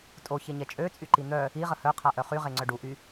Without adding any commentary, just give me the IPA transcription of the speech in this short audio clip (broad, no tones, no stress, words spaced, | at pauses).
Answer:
tʼoçeɲɛ t͡ʃʼøt͡sʼyǃi n̪œ | iʁə hœqʰaʔœ χyʁeŋ͡ǀœ ɖuʔy